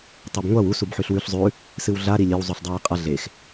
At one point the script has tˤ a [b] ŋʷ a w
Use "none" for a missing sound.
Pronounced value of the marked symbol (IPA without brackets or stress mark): b